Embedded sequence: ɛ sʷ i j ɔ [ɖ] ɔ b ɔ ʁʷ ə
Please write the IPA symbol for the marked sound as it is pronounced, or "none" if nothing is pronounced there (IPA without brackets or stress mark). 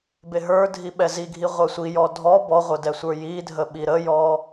dʱ